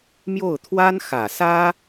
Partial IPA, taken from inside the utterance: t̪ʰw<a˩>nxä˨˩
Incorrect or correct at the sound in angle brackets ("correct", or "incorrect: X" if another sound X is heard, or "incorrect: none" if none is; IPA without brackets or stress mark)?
incorrect: a˥